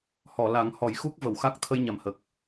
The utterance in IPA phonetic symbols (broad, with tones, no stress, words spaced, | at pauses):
hɔ˨˩˨ la˨˩˦ŋhɔ˨˩˦j xu˦˥k̚ və˨˩˨wxa˦˥k̚ t̪ʰə˧jɲa˨˩mhə˨˩k̚